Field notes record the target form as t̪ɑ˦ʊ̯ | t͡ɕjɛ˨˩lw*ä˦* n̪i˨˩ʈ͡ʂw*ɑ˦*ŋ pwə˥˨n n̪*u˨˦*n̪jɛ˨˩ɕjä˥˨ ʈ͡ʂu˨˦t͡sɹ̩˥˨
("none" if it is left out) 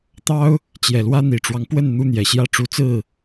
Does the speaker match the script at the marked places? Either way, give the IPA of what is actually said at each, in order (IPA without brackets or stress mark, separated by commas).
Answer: ä˦, ɑ˦, u˦